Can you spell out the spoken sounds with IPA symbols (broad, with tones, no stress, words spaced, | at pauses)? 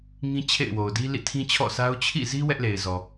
ŋĩ˦ t͡ɕʰḛ˦˨ɪ̯wo˨ʊ̯di˦ lḭ˦˨tʰĩ˦t͡ɕʰɔ̰˦˨sʰa˦ʊ̯ t͡ɕʰḭ˦˨zi˦ wɛ˦ʔle˨ɪ̯zɔ˨